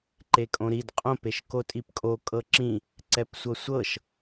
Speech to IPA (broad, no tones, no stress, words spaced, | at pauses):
ǃekʼõɾid qʼõp eʃkotʼipkʼo kʼɤǁĩ | ǀɛpsʷɤsʷɤʃ